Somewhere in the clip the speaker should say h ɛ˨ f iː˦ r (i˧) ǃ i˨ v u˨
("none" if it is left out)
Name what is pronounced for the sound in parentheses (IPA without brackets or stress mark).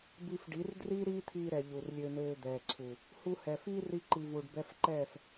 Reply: i˧